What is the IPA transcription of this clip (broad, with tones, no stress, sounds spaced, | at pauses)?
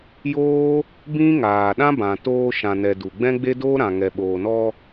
j oː˦ | b ĩ˦ ŋ aː˨ ɗ ã˦ b ã˨ t oː˧ ʃ ã˨ n ɛ˨ d u˨ ɡ͡b ɛ̃˦ ɡ͡b e˦ d oː˦ ɾ ã˨ ŋ ɛ˨ ɓ oː˨ n ɔ˧